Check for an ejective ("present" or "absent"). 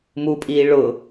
present